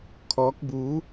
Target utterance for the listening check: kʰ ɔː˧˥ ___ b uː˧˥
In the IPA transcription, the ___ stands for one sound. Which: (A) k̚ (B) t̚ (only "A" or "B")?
A